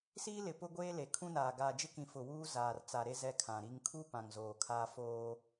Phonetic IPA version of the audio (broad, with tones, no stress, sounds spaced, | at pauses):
s iː˦ l ɪ˨ p ʊ˦ ɡʷ eː˦ l e˨ kʰ ũ˦ n aː˨ ɡ aː˨ d͡ʒ ɪ˦ k ĩ˨ f ʊ˨ w uː˦ z aː˨ r t͡s a˨ ɾ e˦ z ɛ˦ kʰ ã˨ ɾ i˦ ŋ kʰ u˦ p ã˨ ŋ z oː˨ kʰ aː˦ f oː˦